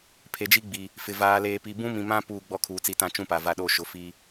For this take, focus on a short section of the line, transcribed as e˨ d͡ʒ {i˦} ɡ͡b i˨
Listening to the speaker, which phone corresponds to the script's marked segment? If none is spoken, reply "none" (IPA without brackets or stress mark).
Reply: i˦